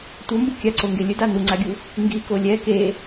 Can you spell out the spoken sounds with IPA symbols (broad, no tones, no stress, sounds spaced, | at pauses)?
tʷ ʌ m b ɯ kʲ a ǀ o ŋ ɡ e lʲ ɯ d a n u ŋ͡ǀ a ɡʲ u | ŋ ɡ i k o lʲ ɛ k e